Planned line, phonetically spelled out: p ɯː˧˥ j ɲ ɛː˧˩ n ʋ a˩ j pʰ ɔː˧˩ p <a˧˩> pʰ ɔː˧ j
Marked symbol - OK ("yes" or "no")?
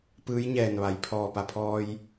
yes